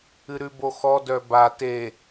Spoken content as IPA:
ɨ ɾ ʉ b o x ɔ d œ b a t e

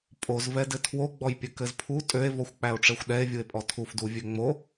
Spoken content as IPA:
pʼ o z v ɛ d ɘ tʰ w o ɡ͡b ɔ j pʲ ɘ k ɘ z pʰ u tʼ ø e̯ v ɔ xʷ k͡p æ o̯ ʈ͡ʂ ɛ xʷ ɗ ɛ e̯ vʲ u e̯ pʼ ɔ tʰ u f d u vʲ ø ŋ͡m o

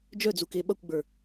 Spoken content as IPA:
d͡ʒ œ d͡z u k e ɓ ʌ kʷ ɡ͡b ə˞

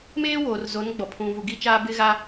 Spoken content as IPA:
m eː˦ w oː˨ r z o˨˦ n ɡ͡b ɔ˨ pʰ ũ˨ v u˨ ɡ i˦ t͡ʃ aː˦ b ɪ˦ ɣ a˦

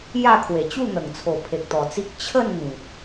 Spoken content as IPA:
j a˥˧ kʰ w e˨˩ t͡ɕ u˥˧ n̪ ə˨˩ ŋ t͡sʰ o˨˩ pʰ e˨ k̚ t̪ ɔ˨˩ t͡s i˦ k̚ t͡ɕʰ ə˥˧ n n̪ ĩ˨ p̚

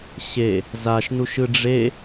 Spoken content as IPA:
ɕ e | z a ʃ n u ʃ ɯ ɖ͡ʐ e

